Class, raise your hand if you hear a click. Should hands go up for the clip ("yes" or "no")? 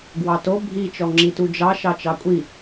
yes